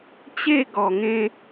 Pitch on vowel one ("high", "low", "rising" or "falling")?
falling